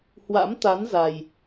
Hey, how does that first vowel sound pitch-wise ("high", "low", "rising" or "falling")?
rising